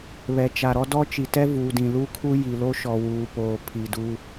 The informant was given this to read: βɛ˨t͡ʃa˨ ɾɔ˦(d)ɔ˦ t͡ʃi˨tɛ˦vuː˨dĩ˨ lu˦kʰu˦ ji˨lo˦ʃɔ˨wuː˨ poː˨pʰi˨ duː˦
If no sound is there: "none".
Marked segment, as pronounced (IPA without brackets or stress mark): d